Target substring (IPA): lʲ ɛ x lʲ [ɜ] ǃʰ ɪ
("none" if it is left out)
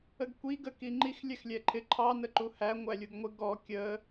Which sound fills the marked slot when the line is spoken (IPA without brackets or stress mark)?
ɛ